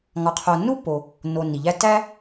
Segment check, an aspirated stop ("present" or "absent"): present